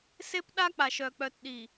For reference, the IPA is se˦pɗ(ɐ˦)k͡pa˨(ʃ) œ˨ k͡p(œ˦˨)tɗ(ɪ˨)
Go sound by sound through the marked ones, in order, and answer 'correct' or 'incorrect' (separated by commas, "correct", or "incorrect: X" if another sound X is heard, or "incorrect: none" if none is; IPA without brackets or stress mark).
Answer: incorrect: a˦, correct, incorrect: œ˨, incorrect: i˨